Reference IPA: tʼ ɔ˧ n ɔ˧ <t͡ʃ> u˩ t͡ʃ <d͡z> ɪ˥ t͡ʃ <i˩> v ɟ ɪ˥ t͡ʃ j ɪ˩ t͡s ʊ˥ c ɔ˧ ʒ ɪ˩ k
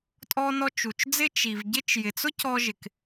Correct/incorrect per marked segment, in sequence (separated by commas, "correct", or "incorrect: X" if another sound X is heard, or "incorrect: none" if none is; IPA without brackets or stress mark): correct, correct, correct